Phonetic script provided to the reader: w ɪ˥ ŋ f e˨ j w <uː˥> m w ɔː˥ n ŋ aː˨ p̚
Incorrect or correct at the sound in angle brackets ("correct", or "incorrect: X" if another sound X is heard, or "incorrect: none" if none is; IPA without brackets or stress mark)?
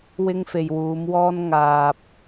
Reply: incorrect: uː˨˧